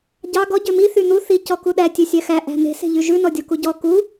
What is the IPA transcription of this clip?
ɟ ɑ ɡ ɔ ɟ ø m i θ y n̪ u θ i c ɔ k u ɗ æ tʲ ø sʲ æ x æ ʔ æ̤ n̪ e̤ s e̤ ʎ y ʒ ʉ n ɔ dʲ ɔ k u ɟ ɔ k u

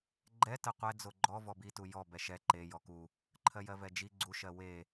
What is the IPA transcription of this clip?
ɡ͡ǃ ɛ t ɜ qʷ ɛ d͡z o ɡ͡ǃ ɔ v ɔ b i t u j ɔ b ɛ ʃ ɛ ǃ e j ɔ k u | ǃʰ ɜ j ɜ v ɛ d͡ʒ i ɡ͡ǀ u ʃ ɜ w e

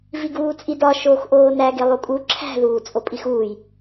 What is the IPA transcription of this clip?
v i ɡ uː t͡sʼ i d ɒ ʃ oː x ʔ oː n æ ɡ e lˠ u kʼ u ǁʰ æ̤ ð uː t͡sʼ o pʼ i x uː j

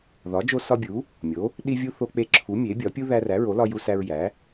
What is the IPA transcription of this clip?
ð ɒ˨˥ d͡ʒ o˦ s ɒ˦ bʲ u˨˥ | mʲ o˨˥ | ɗ i˦ vʲ u˦ θ o˦ k͡p e˦ ǁʰ u˨˥ mʲ e˨˥ bʲ ɒ˨˥ pʲ u˦ ð æ˦ r æ˨˥ ɹ o˨˥ l ɒ˦ j u˦ s æ˦ ɹ j æ˨˥

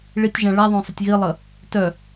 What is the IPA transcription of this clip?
ɭ i tʲ ʒ ã ɭ a ðˤ õ sˤ ə tʲ ɣ i lˠ ə | t œ

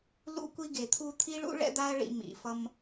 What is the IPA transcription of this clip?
l ṵ˧ kʷ i˧ ɡ e˨ t̪ʰ u˧ t̪ʰ i˦ ɭ ṵ˦ ɭ ɛ̰˦ d̪ a˦ ɐ̯ ɭ ḭ˧ m ḭ˨ f ʌ˧ m

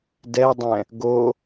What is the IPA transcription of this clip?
d ɛ dˤ ɛ̃ | ɡ o

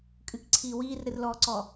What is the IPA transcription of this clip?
kʼ ɨ k ǀʰ iː w iː r ɾ ɨ r l ɔː ǀ ɔ

